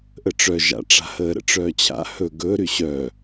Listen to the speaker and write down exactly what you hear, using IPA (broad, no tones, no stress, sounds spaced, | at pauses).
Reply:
ʔ ə ʈ͡ʂ œ ʒ a̰ ʈ͡ʂ a̤ h əː ɾ ə̰ ʈ͡ʂ œː t͡ɕʰ a̰ h ɵ ɡ ɵ ɾ y ɕ œ